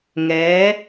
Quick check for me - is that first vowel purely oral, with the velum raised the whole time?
yes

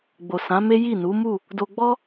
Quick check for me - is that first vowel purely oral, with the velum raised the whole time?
yes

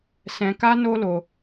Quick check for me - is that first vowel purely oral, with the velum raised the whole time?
no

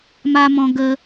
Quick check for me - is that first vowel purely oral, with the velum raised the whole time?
yes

